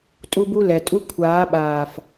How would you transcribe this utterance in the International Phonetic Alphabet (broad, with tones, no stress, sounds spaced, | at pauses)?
tʼ u˦ b u˦ l ɛ˨ tʼ u˦ kʷʰ aː˨˦ ɓ aː˨ f